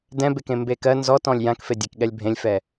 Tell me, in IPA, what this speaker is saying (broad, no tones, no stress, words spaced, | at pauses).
dɛ̃bekẽ mbekɜ nzɔtɔ̃lʲ jãkfedʲekɠɛlʲ bʱẽlʲfɛ